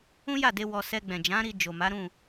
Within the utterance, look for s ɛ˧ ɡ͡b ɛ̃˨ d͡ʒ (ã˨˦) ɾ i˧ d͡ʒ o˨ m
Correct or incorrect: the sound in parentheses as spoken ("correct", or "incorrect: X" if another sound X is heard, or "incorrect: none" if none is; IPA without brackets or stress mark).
correct